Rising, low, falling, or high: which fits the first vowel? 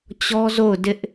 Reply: high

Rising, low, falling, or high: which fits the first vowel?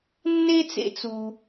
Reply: high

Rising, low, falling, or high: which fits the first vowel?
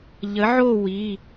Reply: rising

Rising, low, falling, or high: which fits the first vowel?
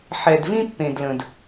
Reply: low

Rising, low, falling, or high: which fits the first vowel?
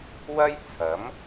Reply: high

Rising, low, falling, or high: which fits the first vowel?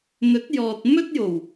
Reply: rising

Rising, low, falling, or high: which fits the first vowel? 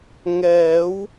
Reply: rising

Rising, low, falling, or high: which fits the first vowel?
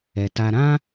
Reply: low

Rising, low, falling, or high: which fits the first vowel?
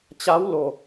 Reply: rising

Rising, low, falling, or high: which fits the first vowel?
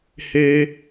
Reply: high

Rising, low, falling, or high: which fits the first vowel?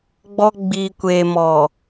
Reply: high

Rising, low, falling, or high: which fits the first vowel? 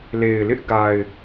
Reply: low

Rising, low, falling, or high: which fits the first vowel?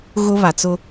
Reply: high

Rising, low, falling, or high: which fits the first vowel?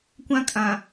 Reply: high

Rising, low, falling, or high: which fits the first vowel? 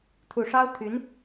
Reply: low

